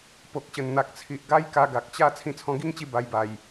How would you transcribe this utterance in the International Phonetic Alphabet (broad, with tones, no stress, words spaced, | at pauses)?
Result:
po˨k̚ɕə˨˩nn̪a˨k̚t͡sʰi˨ʔ ɡa˦j ka˧ɡa˨k̚t͡ɕa˥˧ t͡sʰĩ˧t͡sʰɔ̃˧ɡi˦ŋt͡ɕi˧ ba˧jba˨˩j